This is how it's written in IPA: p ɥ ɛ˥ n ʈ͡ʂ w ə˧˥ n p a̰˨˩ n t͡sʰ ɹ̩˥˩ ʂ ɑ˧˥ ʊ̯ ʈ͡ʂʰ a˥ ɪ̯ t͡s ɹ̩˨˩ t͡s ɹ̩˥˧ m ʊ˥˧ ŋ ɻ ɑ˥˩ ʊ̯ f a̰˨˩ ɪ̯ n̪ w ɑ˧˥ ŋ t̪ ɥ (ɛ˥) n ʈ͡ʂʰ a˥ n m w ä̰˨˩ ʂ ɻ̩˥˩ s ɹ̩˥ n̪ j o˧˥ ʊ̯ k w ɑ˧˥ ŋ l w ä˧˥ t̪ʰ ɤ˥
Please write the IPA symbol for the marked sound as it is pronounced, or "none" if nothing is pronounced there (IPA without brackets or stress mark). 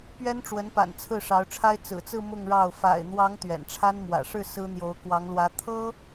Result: ɛ̰˨˩